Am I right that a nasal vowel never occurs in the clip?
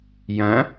no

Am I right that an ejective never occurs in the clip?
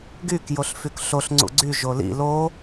yes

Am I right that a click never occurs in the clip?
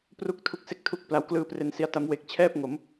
yes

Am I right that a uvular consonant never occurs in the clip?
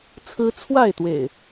yes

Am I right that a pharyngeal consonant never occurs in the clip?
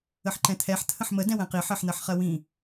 no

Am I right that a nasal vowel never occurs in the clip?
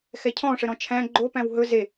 no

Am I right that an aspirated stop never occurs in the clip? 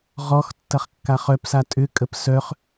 yes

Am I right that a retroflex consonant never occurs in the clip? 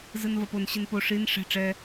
no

